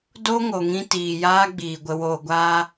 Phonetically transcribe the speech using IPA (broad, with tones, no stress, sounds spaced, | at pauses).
d o˦ ŋ o˨ ŋ ĩ˧ t iː˨ j aː˦ ɡ͡b iː˨ ɡʷ ə˧ w oː˧ ɡʷ aː˦